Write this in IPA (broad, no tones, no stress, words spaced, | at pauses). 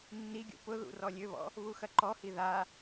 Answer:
nːiɡʲṵ pʊðṵ rɔlʲøβɔ̰ | βuxɐǃɔhi ða